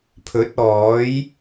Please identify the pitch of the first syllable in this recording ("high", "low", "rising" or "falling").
rising